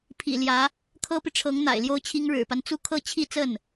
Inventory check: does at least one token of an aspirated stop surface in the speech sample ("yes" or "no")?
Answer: yes